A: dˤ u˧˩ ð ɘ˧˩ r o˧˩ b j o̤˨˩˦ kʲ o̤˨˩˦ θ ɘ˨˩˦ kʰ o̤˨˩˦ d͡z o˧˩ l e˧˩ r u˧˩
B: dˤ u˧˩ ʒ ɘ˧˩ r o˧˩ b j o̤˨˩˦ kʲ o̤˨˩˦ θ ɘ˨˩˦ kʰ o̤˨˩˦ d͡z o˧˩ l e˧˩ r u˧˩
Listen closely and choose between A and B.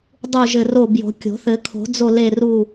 B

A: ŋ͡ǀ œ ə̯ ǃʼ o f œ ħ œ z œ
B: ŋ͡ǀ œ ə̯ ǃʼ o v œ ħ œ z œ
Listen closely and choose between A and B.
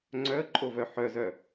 B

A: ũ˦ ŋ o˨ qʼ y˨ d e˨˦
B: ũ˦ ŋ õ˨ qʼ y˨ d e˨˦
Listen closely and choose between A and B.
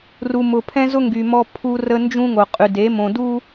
A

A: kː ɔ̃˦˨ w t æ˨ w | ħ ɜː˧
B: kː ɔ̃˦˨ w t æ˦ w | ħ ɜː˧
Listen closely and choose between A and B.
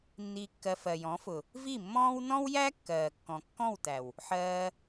A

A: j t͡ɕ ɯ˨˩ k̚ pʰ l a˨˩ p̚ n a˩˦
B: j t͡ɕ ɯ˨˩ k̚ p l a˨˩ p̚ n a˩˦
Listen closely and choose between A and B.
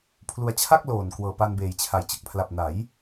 A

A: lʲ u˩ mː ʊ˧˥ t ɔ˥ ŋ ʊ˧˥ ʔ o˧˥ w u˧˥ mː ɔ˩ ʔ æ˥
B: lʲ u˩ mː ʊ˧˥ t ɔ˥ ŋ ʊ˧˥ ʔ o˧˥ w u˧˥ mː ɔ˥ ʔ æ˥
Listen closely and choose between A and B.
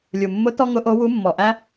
A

